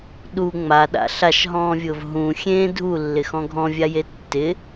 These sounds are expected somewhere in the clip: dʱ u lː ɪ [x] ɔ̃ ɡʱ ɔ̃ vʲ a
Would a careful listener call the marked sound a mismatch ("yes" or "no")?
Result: no